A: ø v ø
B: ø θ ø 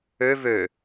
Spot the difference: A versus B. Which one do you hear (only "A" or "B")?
A